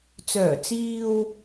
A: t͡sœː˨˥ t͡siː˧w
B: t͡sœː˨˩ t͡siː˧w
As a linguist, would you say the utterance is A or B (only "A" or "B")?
B